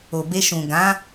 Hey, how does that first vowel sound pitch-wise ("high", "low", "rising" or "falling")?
low